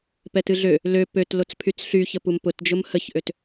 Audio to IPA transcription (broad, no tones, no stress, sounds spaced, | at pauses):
p ɛ t ɨ ɮ ø | l ø p ø t l o t͡s pʰ y t͡s ɬ y ç ə p u m p ʊ t d͡ʒ ʊ m h ə ç ʔ ø t